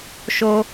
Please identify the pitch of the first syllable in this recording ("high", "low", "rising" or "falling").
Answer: high